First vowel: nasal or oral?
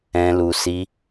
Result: nasal